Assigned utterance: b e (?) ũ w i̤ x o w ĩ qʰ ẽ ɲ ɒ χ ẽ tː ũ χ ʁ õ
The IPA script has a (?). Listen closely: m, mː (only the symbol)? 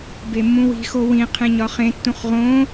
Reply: mː